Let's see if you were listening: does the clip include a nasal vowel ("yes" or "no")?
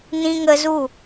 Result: yes